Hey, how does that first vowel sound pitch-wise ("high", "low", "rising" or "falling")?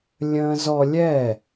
high